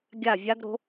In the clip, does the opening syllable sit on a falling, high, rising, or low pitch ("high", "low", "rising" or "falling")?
falling